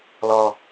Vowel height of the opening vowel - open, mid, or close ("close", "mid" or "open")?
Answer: mid